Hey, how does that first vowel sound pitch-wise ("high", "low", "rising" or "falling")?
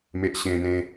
low